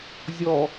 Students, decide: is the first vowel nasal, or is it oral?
oral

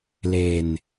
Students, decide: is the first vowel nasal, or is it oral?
oral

